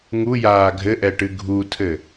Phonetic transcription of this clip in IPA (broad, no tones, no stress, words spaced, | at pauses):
ŋujaː ɡʱɘʔɛʈɨ ɡʱutʰɘ